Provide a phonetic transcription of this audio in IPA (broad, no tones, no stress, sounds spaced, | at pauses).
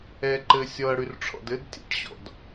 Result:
ɛ ǃ ɘ sʲ ɔ ɐ̯ ɽ y r ʈ͡ʂʰ ɔ̰ d ɘ d tʲ ɛ̰ ʈ ɕ ɔ̰ d